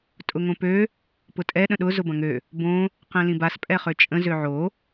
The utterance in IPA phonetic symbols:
tʼ ʊ ŋ õ p ø | p ʊ tʼ ɛ ɗ ə̃ ɗ ʊ z ʊ b ɐ̃ ŋ ø | b õ | q ɛ̃ l ĩ b a s pʼ ɛ χ ø t͡ʃʼ ə̃ z ø ʕ o

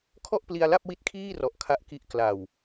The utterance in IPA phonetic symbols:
kʰ ɔ˥˩ ʔ p l i˧ a̯ l a˥˩ p̚ w i˦˥ t̚ kʰ iː˥˩ r ɔ˨˩ ʔ kʰ a˦˥ ʔ k i˦˥ ʔ k l a˨˩ w

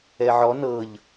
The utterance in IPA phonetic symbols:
ɛ ʕ ɔ n ɤ ʎ

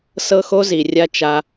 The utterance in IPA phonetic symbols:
s ɤ˦ x o˦ z i˨ rʲ a˦ t͡ʃ a˦

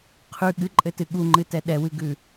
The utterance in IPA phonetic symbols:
qʰ ʉ ɠ ɨ ǃʼ ɘ t ɨ ɠ u ŋ͡ǃ ɨ t ɛ ɗ ɛ w ɨ ɡ ʉ

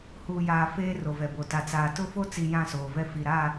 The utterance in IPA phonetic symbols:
h uː˨ j aː˨ f eː˦ r o˨ v ɛ˨ b o˨ t a˨ t͡s aː˨ t ʊ˦ f o˦ t͡s i˨ j ã˦˨ s oː˨ v ɛ˦ f i˨ ɾ a˦˨

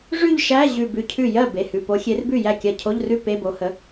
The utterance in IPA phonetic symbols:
ʐ ʉ˥˧ ʎ ʃ æ˧˥˧ ʑ ʉ˧˩ b ʉ˧˩ cʰ ʉ˥˩ j ɜ˥˩ b e˩˧˩ h ʉ˩˧˩ p o˨˦ xʲ e˨˦ r b ʉ˥˩ j æ˥˩ kʲ ɜ˧˩ cʰ o˧˥˧ ʎ r ʉ˥˧ p e˧˥˧ b o˨˦ h ə˨˦

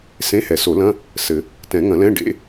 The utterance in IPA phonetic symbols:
s ẽ˧˥˧ h ɛ˨˩˦ s o˨˩˦ l ɐ̃˧˥˧ | s ɘ˨˩˦ | t ɛ̃˨˩˦ ŋ ɐ̃˨˩˦ l ɛ̃˧˥˧ ɖ ḛ˧˥˧

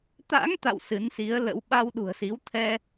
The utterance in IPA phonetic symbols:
t̪ a̰˧˥ ŋ t̪ a̰˧˨ w s ɨ˨˦ n s i˨˦ ə̯ l ə̰˧˥ w ɓ a˧ w ɗ ṳ˨˩ ə̯ s i˨˦ w t̪ʰ ɛ˧

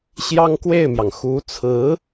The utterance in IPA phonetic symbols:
ɕ j ɑ˥ ŋ k w e˥˩ ɪ̯ m j ɑ˩ ŋ x u˧˥ t͡sʰ ɹ̩˧˥

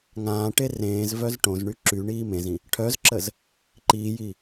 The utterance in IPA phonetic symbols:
ŋ ãː ʈ e r ẽː z v œ z ʈ õ z ɳ y ǁ y ɳ iː m ẽ z ĩ | ʈʰ œ z ǁ ə z | ǃ iː j i

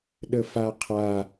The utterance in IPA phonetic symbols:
ɗ ə f a qʰ a

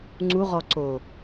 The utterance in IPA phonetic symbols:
ŋ͡ǀ u ʁ ɔ ǀ o

